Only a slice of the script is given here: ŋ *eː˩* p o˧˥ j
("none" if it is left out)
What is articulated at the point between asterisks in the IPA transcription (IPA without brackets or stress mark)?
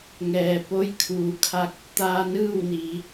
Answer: ɛː˩